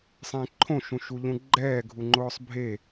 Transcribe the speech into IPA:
sˤẽǃʰõ ʃũʃuʎũɡ͡ǃɛː ɡʱuŋ͡ǃʊːsˤbʱe

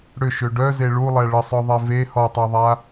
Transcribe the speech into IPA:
ɽʏʃø ɖœze ɭulˠɛ ɭəsˤœðˤe ve hɔtˤaðˤa

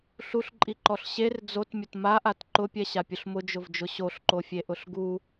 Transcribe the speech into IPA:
ɬuɬǃʼiǃɔɬ ɕer d͡zotmʲʊt maʔat ǃʊpʲɛɕapʲʊɬ mʊd͡ʒʊvd͡ʒʊ ɕoɬǃofʲeʔʊɬ ɡu

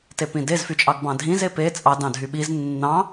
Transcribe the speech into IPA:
tepĩdez fyt͡ʃʼɑɡbɑ̃dʱĩz epe t͡sʼɑ dɑ̃dʱyɓiz nːɑ̃

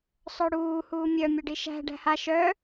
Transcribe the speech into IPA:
sˤœɽuː huːmʲœ mʲœɖiʃæ̤ ɖæ̤ha ʃœ

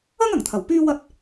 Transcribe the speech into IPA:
ɐ˥ŋɐ˨˩ŋt̪ʰɐ˨˩w pyː˥wɐ˥t̚

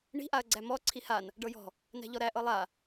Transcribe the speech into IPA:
ɳi̤ ʔaɐ̯ɡ͡ǀæmɔ ǀʰihan | ɖɤjɔ̤ | næ̤ʎɔɾæ ʔɤlˠa

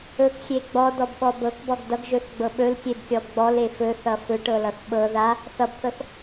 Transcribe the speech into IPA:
ɵkxʲe ɡ͡bɔdɔbɓɔ bɤkbɔɡ dʌɡʒɵθɡ͡bɤ ɓɵlkʲebkʲɔb ɡ͡bɔle fɵθʌ fɵʈɤlʌθ ɓɤ ða | θʌbθɤθ

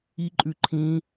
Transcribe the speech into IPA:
iǃʼʉ ǃʰĩ

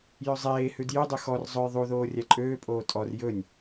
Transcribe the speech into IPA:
jøzˤeːhʉd jydˤʉ xɔr zˤɵj ðˤu ðoːrʲæǃʼøːpʼoː tʼɔr jɵnʲ

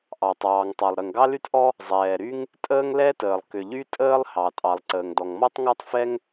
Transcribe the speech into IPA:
ʔɑ˩tˤɑː˩ŋtˤɑ˩lˠ ɾə˩ŋɡɑ˥ly˥tʔɔ˥ | zˤɛː˩ɾy˥ŋ | tʼəː˥ŋlɛ˥təː˩lˠ kʏ˩ʎy˥ tʼəː˥lˠ hɑ˩ tʼɑ˩lˠǀəː˩ŋdɔ˩ŋ mɔ˥tˤŋɑ˥tˤfɛ˥ŋ

